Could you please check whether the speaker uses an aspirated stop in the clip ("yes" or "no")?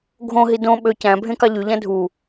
no